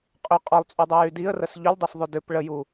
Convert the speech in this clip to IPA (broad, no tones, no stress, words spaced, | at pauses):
qʼʏ qʼɒlˠt͡sʼydˤujy diə̯rəs ʎʏlʲdˤusðˤʏ dʏp ɭəju